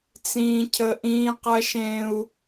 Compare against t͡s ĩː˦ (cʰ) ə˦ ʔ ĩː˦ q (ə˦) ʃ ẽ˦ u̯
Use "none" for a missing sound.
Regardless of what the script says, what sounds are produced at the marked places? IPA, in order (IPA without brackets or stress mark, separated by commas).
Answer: cʰ, ɐ˦